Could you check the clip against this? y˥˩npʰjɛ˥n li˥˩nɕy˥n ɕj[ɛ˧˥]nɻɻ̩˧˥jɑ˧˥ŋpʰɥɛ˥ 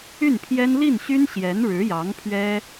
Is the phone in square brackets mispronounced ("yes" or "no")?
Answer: no